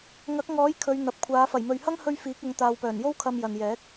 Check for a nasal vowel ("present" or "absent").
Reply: absent